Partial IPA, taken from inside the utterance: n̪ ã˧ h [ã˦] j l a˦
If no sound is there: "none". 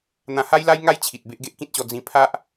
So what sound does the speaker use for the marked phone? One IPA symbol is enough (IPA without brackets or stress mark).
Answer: a˦